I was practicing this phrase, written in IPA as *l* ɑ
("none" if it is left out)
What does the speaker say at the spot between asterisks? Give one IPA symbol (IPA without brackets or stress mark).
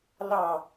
l